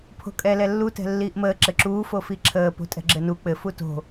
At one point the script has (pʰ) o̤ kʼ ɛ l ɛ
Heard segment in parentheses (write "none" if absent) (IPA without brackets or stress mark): pʰ